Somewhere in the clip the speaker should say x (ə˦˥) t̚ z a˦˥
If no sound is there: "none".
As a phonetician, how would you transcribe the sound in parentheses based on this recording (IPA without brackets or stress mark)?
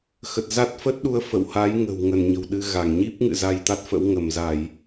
ə˨˩